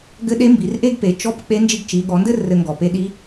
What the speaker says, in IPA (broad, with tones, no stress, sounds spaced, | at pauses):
ɡ ɘ˧˥ ɗ e˧˥ m b i˩˧ r ʔ e˥ ɡ p e˩˧ t͡ʃ ɔ˧˥ p k͡p e˧˥ n d͡ʒ i˧ ɡ t͡ʃ i˩˧ ɠ ɔ˩˧ n d ɘ˥ r ɘ˧ ŋ ɡ ɔ˩ p e˧˥ ɗ i˧˥